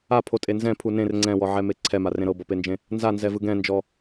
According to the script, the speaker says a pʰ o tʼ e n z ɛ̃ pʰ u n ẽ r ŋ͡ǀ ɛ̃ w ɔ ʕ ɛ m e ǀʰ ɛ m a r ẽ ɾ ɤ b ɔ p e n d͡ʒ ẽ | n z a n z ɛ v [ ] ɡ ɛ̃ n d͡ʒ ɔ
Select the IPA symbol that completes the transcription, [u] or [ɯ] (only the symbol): ɯ